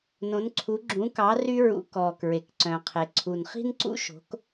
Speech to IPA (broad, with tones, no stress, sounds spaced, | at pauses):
n õ˧˥ n ǀʰ u˧˥ ɡ͡ǁ ũ˧˥ k ɑ˧˥ r y˥ ɹ ṵ˧˥ k ɔː˨ k ɹ e˨ k ǀ œ̃˨ qʰ e˨ ǀʰ u˨ n χ i̤˥ n ǀ ṵ˥ ʃ o̤˧˥ k